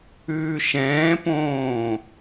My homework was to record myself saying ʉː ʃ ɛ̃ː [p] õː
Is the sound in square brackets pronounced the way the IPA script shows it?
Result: yes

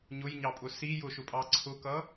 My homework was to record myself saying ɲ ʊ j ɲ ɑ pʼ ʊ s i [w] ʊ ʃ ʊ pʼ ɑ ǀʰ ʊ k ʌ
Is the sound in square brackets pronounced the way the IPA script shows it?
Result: no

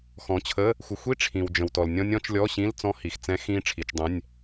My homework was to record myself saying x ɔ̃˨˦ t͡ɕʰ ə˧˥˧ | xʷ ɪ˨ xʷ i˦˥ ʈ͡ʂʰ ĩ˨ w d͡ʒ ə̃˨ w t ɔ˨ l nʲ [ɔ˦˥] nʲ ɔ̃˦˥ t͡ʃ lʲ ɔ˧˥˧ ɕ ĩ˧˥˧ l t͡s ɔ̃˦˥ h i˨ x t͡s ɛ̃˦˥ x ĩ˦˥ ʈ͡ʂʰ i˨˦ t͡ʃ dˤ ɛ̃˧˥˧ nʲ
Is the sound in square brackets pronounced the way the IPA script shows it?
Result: no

